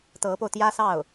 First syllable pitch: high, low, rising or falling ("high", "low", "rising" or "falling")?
rising